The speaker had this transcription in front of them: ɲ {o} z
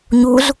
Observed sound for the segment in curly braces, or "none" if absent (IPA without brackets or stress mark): u